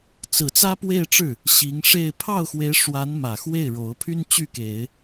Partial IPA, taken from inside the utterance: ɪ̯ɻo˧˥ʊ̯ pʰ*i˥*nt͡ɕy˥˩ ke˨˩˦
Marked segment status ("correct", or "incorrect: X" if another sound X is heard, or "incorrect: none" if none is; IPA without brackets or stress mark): incorrect: y˥